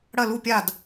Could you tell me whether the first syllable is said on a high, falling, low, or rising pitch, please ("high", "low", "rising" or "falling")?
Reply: falling